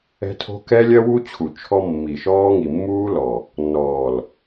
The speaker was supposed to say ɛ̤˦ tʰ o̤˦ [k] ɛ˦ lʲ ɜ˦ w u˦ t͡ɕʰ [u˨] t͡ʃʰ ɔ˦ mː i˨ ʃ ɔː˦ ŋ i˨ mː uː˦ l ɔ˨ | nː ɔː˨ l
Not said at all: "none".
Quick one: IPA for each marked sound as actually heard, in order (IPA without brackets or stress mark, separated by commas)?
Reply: k, u˨